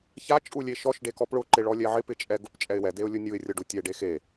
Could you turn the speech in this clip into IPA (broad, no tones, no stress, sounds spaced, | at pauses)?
ç a t͡ʃʼ u lʲ e ʃ ɔ ʃ ɖ e k ɔ p ɭ ʊ ǃ ɪ ɭ ɔ lʲ ɛ ʕ ɪ p ɪ t͡ʃʼ ɛ ɡ ʊ p t͡ʃʼ ɛ ɪ̯ w ɛ d e ʊ̯ lʲ ʊ nʲ u ɪ̯ rʲ ɔ ɖ u tʲ ɛ ɖ e x e